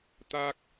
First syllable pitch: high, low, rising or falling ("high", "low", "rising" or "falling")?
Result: high